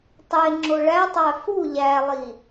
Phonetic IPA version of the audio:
tˤ e ŋ͡ǁ o ɭ æ tˤ æ f u ʎ æ lˠ i

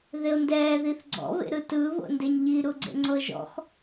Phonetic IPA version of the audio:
ð e o̯ n d ɛː ð i θ ɡ͡ǀ ɔ̰ β ḛ ɾ ɯ t ɯ β o̰ n d e ɲ ʎ i ɾ u ɡ͡ǀ ḛ ŋ͡ǀ ɤ ʒ ɔ̰ x

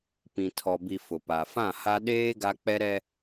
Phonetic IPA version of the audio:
p ĩ˨ tʰ ɔ˨ b i˨ f ʊ˨ p a˨ f ã˦˨ h a˦ ɗ eː˦ ɡ a˦ k͡p ɛ˦ ɾ ɛ˦

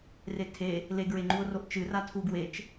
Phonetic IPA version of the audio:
r e tʰ e | l e ɡ ɹ e ŋ͡ǃ u o̯ r o ʔ t͡ʃ ɨ r a tʰ u ɡ w e t͡ʃ

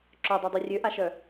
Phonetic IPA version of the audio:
ǁ œ dˤ œ dˤ i rʲ ø ʔ a ʃ œ

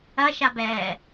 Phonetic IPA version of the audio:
ɐ ʃ a b ɛː

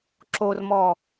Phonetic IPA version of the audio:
ǁ o r m ɔ

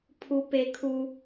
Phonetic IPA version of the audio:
pʰ u˨ p e˨ kʰ u˨

